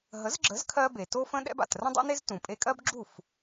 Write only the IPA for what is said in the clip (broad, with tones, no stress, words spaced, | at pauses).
ɦə˩˥zɡ͡ǁə˩˥z kʰɜ˧be˩ to˥fə̃˥ɗɛ̰˥b a̰˩t rə̃˥dˤɛ̰˥ne˥z tũ˩pʼe˧kʼɜ˥b ɡ͡ǁu˥˩f